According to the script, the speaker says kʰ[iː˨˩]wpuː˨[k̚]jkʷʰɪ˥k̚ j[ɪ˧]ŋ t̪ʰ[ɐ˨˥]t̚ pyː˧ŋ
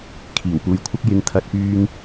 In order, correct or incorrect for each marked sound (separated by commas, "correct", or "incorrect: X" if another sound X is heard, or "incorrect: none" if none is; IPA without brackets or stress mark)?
correct, incorrect: none, correct, incorrect: ɐ˧